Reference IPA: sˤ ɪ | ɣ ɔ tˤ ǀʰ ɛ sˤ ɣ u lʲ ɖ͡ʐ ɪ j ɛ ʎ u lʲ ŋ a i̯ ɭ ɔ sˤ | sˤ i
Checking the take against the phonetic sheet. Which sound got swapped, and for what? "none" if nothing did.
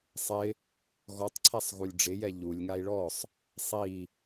none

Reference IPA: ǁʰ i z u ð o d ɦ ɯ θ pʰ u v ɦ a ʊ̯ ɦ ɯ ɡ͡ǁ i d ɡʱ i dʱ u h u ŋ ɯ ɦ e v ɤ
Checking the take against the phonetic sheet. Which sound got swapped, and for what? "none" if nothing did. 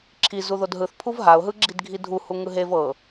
none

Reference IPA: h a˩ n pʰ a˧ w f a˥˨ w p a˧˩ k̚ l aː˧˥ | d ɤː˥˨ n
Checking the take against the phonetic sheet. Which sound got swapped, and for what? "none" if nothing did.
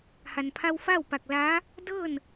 none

